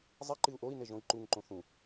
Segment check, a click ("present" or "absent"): present